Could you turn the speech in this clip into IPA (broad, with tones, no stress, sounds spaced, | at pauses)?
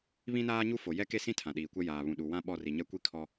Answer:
β ĩ˦ n aː˦ ɲ u˦ f o˨ j ɛ˦ k e˦ s ĩ˦ tʰ ã˨ ɗ iː˨ kʷ ɛ˦ j aː˨ β ũ˨ ɗ u˨ w ã˦ ɓ ɔ˦˨ r i˨ ɲ ɛ˦ kʷ i˦ kʰ ɔ˦